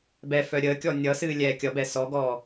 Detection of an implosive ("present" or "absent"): absent